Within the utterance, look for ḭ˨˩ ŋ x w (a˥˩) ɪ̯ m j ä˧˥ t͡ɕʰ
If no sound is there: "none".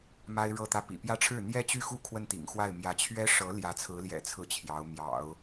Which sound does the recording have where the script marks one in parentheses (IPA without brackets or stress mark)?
a˥˩